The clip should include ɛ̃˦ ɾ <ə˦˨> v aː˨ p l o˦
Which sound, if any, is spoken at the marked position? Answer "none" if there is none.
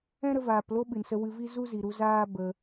ə˧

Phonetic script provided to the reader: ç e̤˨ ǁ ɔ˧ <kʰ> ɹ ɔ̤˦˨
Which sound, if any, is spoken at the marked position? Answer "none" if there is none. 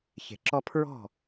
pʰ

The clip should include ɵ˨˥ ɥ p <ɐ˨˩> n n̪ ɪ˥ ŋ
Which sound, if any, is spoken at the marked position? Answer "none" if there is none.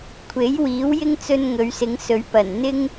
ɐ˨˩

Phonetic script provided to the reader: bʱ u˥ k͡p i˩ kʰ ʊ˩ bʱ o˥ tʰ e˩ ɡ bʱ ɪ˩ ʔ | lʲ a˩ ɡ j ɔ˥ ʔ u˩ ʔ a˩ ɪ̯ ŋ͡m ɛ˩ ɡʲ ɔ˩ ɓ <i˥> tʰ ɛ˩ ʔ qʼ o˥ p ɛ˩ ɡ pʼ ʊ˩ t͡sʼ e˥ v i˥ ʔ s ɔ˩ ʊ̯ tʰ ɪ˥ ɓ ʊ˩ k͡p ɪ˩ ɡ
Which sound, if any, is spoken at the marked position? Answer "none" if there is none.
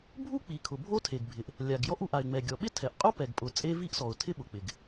ɪ˥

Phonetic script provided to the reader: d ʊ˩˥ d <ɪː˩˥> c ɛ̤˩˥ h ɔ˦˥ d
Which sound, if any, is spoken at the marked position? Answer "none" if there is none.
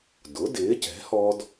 ɪː˩˥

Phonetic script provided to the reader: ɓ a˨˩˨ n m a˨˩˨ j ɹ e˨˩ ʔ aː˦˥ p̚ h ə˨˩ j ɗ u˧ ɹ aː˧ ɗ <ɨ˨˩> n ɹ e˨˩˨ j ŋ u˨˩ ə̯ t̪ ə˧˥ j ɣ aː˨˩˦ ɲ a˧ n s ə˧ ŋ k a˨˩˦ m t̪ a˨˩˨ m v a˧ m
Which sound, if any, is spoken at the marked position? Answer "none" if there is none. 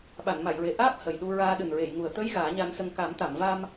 ɨ˨˩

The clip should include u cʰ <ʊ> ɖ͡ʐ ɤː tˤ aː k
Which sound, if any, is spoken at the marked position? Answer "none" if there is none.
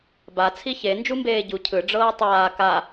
ɯ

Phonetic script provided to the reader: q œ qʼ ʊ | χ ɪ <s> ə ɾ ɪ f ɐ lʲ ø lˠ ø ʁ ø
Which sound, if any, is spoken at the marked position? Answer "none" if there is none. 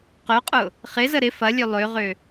z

